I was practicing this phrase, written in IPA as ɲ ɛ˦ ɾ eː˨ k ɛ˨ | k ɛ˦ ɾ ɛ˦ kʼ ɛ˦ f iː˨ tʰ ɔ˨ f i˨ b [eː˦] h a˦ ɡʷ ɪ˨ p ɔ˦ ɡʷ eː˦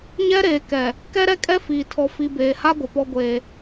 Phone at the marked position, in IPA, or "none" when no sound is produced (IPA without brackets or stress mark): eː˨